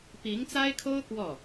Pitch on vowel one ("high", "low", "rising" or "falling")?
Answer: rising